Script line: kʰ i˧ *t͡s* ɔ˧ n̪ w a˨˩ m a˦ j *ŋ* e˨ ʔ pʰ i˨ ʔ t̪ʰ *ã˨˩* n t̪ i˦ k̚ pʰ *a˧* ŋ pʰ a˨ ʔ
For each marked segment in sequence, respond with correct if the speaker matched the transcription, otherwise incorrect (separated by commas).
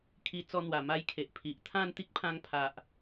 correct, incorrect, incorrect, incorrect